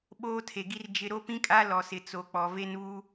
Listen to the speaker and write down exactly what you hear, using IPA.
ɓoː˦tʰe˨ɡi˦r d͡ʒɪ˦ ɾo˦pĩ˦kʼa˦ lɔ˨sɪ˨t͡so˨ k͡pɔ˨ ve˦nβu˦

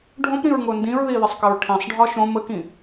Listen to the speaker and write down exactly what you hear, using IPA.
ɖʱõpɾĩɹŋo ndĩɹðiðəsˤkəɹ ʈʰĩsˤɖʱɒ ʃõ məkĩ

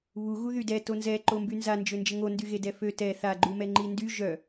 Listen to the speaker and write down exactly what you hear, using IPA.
βu ɣuðydɛ tonzɛ ǃombynza nd͡ʒønd͡ʒəŋo ndyɣedɛfø tɛ θa ɡ͡ǃumɛŋ͡ǃindy ʒœ

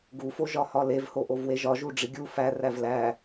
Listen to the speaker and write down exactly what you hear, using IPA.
ɡufo ʒɒhɒlevho ʔovweʒɒʒu ɖ͡ʐiɡʲu fæ rævlæ

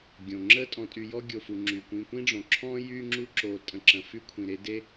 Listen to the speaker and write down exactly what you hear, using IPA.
ɡʲõ˩ŋ͡ǁə˦ tʼɔ̃˨tʼy˨jɔ˦ ɡʲo˨fu˨ ŋ͡ǁy˩kʷĩ˨kʷĩ˥ɖ͡ʐõ˩ ǁʰɔ̃˥ jy˦ŋ͡ǁu˦ǁo˨ tʼə̃˨ǁə̃˩fy˥kʷʰĩ˩ ɾe˥de˥

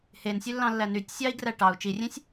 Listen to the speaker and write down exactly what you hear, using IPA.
hensʲølːɑ̃lːæ nytʲ sʲɑi̯ɡræ ʈɑu̯ t͡ʃirʲẽsʲ

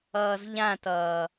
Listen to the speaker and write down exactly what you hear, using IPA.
ʌːzʎãtʌː

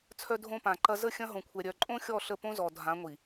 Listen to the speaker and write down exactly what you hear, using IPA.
t͡sʰœ˦dʱõ˦pã˨ǃɐ˦ zə˦˨ xʲɐ̃˦ɦõ˨kʷʰɛ˨ ɾʲœ˨ǃʼõ˦xʲɔ˦˨ ɬə˦˨põ˦zɔ˨ dʱã˨˦ŋʷi˨

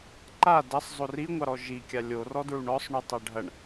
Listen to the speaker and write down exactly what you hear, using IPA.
ǃa dɐsˤzˤo riŋʷɑɾɔ ʒikʲa lʲorɔdɹuɳ ɔsˤɳutˤa ɖʱɐɳ

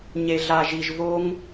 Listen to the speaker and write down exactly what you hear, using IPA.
ɲe˧ɮa˧ʒi˧ʒ vo˦ŋ

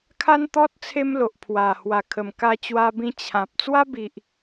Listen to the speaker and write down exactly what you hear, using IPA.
kʰa˦nt̪ɔ˦t̚ t͡sʰe˦mlo˨ʔ pʰwa˨˩hwa˨˩kʰə˨˩m ka˧ t͡ɕwa˧bĩ˧ t͡ɕʰã˨p̚ t͡swa˦bi˨ʔ

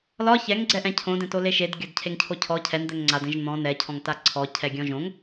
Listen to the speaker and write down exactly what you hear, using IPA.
lɒ çɛŋɡ͡ǀɛ ʔɛ̃cʰõdɛ̃to leʃed ɡʲɒdcʰeŋcʰocʰɔ cʰɛnd̪ɛŋ ŋ͡ǀadɛ̃ʒ n̪ɔ̃ nɛcʰɔ̃ŋta ǀʰɔcʰɛ ɡʲɔ̃ʒõŋ

